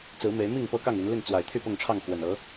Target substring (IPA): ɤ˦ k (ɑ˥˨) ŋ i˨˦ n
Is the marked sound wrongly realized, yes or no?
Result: no